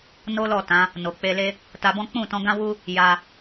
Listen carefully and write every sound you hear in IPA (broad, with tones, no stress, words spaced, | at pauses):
no˦lɔ˦˨ tã˨˦ | no˨ k͡pe˧le˦ | ta˧bɔ̃˦ k͡pũ˦˨tɔ̃˧ɡã˦ wu˦ | ja˧